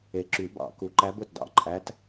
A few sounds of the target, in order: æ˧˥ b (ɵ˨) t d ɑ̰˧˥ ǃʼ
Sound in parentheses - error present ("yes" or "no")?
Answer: no